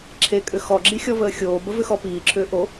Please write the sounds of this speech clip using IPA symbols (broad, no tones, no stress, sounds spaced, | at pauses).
ǁʰ e kʼ ʏ x ɔ ɡ͡ǁ i xʲ ɔ v əː xʲ oː b ə v ʏ x ɔ p iː ǁʰ ʏː ʔ o